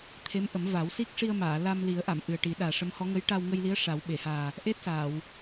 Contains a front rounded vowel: no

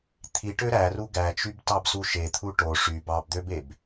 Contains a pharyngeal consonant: no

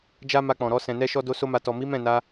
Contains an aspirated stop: no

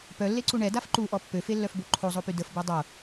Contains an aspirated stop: yes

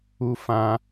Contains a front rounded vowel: no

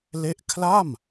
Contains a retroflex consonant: no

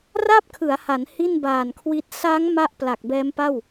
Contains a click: no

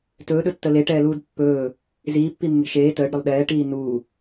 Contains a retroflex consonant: yes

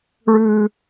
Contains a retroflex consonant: yes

